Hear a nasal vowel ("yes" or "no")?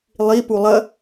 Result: no